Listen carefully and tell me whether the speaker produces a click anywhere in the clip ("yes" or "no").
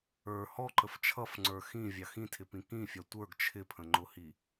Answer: yes